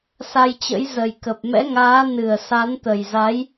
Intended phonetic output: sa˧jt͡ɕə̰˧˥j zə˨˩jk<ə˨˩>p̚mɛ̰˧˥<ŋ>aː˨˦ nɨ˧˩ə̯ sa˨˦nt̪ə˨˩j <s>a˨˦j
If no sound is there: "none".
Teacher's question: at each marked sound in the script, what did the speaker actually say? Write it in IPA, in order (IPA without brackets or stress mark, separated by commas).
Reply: ə˨˩, ŋ, z